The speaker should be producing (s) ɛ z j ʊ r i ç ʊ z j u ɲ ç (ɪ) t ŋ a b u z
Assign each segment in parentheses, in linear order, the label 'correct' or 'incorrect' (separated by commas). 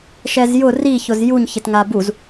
incorrect, correct